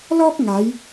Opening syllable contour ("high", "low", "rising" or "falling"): high